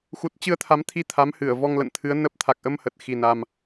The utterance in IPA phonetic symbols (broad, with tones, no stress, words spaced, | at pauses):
xu˨˩t̚t͡ɕɨ˧ə̯t̪ʰa˨˦mt̪ʰi˧ t̪ʰa˨˦mhɨ˧˩ə̯ vɔ˧ŋlə̰˧˨nt̪ʰɨ˨˦ə̯nə˦˥p̚ t̪ʰa˨˩k̚ʔə˧mhə˨˩t̚ xi˨˩na˨˩m